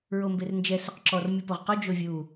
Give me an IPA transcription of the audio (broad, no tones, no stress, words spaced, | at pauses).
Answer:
ɹombernd͡ʒɛ sʊqǁɔr mʲupoʁqɔ d͡ʒovʲu